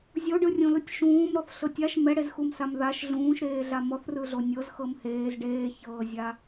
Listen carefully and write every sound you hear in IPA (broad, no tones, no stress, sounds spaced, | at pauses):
zʲ o ɖ ɯ rʲ õ l ɯ tʲ ʃ ũː m ɾ ɔ θ ɬ ɤ tʲ a ʃ m ɛ ɽ e z x u m s a m ð a ʃ ɮ ũː ʃ ɾ eː ɮ a m ɔ θ r ɯ ɮ o nʲ ɤ z x ɤ m h eː z ɖ eː ç ɤː zʲ a